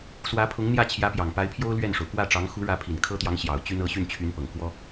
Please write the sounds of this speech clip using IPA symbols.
s w ä˧˥ pʰ ʊ˧˥ ŋ n̪ j ä˥˩ t͡ɕʰ j ä˧˥ p j ɑ˨˩ ŋ p a˧˥ ɪ̯ pʰ j o˥ ʊ̯ l ɥ ɛ˥˩ n ʂ o˩ ʊ̯ k w ä˥˩ ʈ͡ʂ ɑ˧˥ ŋ x u˧˥ ɻ ä˧˥ pʰ i˨˩ n kʰ ɤ˥ t̪ j ɑ˧˥ ŋ ɕ j ɑ˨˩ ʊ̯ t͡ɕ y˥ n ɤ˧˥ ɕ y˥˩ n t͡ɕʰ y˧˥ n p ɤ˨˩ ŋ k w ɔ˥

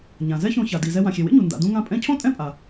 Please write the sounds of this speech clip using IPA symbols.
ɲ ã˩ z ɛ˥ ç õ˧ ç a˩ d i˩ z ɛ˧ w ã˩ xʲ e˩ w ḛ˥ ɲ u˩ n d a̰˩ d ũ˧ ŋ ã˧ pʼ ɛ̃˧ cʰ õ˥ tʼ ɛ̃˥ pʼ a˩

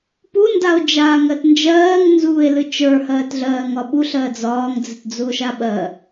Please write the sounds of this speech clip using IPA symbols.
p u n d a o̯ d͡ʒ aː ŋ ɜ t n d͡ʒ ɜː ŋ n z uː e̯ l ɨ t͡ʃ ə˞ h ɜː t ɮ ɜː ŋ ɒ ɓ u ɬ ɜ d͡z ɒː ŋ d͡z ɨ t d͡z u o̯ ʃ a ɓ ɜ

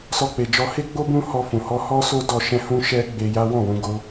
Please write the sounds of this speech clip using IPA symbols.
s ɔ˧ k͡p e˨ d͡ʒ ɔ˧ h e˦ ɡ͡b o˦ b ũ˦ h ɔ˧ f ũ˨ h ɔ˧ h ɔ˦ s o˦ d ɔ˧ ʃ ɛ̃˦ h ũ˦ ʃ ɛ˦ ɡ͡b e˧ j a˦ w ɔ̃˦˨ w ũ˧ ɡ o˧

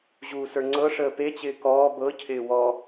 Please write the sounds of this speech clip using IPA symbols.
ʑ uː s ə˞ ŋ͡ǀ ɤ ʂ əː p e t͡ɕ ɪː k ɔː b ɤ cʰ ɪː w ɔ

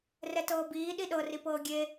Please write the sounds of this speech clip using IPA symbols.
r ɛ t ɤː b iː ɗ i ɗ ɤ r i p ɤː ɡʲ e

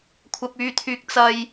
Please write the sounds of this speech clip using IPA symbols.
kʷʰ ɐ˧ p̚ yː˧ t̪ʰ yː˧ k̚ t͡s ɐ˧ j

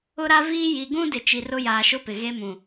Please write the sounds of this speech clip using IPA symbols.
ʊ˦ ɾ a˦ v iː˦ j i˨ ɡ ũ˦ d ɪ˨ t͡ʃ i˨ r ʊ˦ j aː˨ ʃ ʊ˦ p ɪ˨ ɣ e˦ m ũ˨

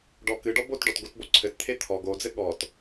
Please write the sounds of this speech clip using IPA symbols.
ɖ ɔ k ɨ ɖ ɔ b o t ɖ ɔ t ɡ o t b o ǀʰ ɘ t t̪ʰ e t̪ʰ ɔ ɡ o d͡z ɘ ɠ ɔ t

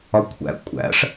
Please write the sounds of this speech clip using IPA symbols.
ɒ kʷʰ æ̰ kʷʼ æ̰ ʂ

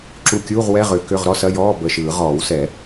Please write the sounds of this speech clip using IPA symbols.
ǁ u˧˩ kʲ uː˧˥˧ ʁ w ɛ˧˥˧ ʁ ʏ˨˩˦ k ʏ˧˥˧ ʁ ɾ ɔ˧˥˧ s ɐ˧˥˧ j ɔː˧˥˧ b ə˧˩ ʃ ɯː˨˩˦ ʁ ɔː˨˩˦ w s ɛ˨˩˦

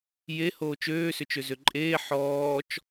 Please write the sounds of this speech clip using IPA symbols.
j e h oː t͡ʃ øː s ʏ t͡ʃ ø z ø ǃʼ eː ħ ɔː t͡ʃ

